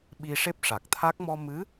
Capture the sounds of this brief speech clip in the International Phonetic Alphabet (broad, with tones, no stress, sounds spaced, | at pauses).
ɓ i˧ ʂ e˦˥ p̚ ʂ a˨˩ k̚ t̪ʰ a˦˥ k̚ m ɔ˧ m ɨ˧˥